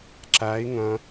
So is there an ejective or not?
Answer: no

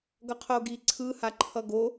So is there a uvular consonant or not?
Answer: yes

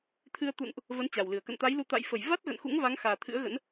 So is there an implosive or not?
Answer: no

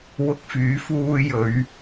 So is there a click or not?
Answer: no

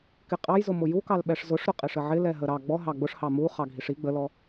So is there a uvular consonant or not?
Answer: yes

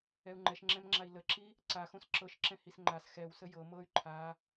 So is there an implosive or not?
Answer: no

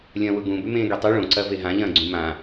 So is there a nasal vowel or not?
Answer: yes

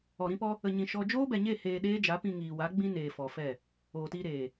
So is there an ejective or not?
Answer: no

